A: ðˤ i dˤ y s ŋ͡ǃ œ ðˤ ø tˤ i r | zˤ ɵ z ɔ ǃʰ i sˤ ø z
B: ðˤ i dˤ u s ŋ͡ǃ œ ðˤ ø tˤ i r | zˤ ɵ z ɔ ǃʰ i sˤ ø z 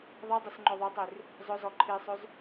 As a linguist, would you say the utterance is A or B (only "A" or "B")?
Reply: A